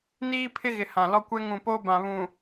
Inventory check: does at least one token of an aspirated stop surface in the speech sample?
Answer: yes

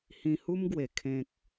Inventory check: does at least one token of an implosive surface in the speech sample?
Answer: no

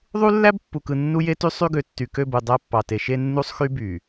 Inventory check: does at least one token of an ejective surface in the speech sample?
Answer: no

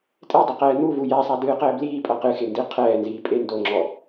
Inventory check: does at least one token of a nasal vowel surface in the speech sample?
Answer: no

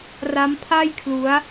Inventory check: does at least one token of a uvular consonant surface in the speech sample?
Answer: no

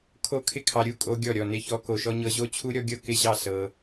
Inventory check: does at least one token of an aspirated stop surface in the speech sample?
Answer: yes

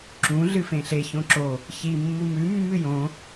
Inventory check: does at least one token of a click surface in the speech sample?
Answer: yes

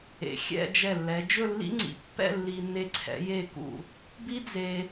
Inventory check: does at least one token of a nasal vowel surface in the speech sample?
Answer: no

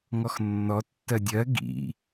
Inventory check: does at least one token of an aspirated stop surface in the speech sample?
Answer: no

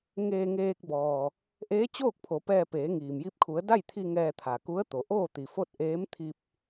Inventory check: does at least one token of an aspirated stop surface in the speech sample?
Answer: yes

